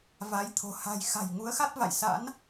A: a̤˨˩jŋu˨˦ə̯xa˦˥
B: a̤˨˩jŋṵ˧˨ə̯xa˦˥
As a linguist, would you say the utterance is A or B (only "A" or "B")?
A